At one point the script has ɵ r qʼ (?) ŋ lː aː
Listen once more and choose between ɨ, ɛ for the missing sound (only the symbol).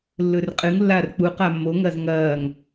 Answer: ɨ